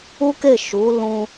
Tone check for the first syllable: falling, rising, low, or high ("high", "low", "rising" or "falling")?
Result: high